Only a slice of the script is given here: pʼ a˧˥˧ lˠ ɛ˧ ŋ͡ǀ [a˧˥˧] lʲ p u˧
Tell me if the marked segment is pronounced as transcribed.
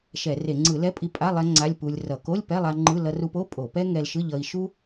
yes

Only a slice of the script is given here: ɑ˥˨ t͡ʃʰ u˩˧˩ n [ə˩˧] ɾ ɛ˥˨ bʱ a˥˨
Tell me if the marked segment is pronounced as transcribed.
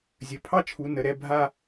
yes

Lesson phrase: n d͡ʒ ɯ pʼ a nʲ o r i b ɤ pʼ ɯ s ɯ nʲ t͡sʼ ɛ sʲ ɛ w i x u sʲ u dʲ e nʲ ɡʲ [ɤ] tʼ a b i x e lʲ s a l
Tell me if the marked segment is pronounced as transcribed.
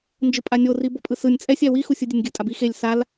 no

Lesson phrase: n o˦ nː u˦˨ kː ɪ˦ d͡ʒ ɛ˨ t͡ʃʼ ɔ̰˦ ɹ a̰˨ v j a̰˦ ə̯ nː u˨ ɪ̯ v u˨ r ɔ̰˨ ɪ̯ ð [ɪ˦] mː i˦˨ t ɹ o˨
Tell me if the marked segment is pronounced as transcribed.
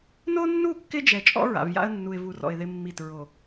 yes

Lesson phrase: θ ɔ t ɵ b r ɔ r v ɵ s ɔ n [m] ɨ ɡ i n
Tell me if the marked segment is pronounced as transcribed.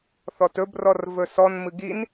yes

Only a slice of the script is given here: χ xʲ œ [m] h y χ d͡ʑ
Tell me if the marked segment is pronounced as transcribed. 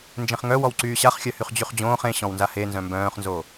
no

